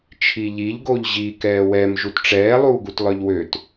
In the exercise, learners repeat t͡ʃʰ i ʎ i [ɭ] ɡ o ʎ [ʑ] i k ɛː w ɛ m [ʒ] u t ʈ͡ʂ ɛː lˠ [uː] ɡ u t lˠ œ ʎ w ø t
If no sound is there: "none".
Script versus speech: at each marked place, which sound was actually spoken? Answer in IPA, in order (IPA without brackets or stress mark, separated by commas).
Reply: ʎ, ʑ, ʒ, uː